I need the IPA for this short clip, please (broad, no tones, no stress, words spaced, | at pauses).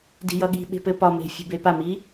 di̤jʌɠi̤ɓe̤ pɘpɒme̤ fʲṳbepami